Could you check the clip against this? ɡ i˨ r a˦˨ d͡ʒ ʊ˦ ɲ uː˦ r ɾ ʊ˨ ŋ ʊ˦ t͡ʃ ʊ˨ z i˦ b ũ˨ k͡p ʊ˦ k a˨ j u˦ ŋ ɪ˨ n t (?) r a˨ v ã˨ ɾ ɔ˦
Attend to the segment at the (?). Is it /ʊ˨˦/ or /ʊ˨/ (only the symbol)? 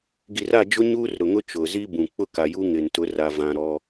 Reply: ʊ˨˦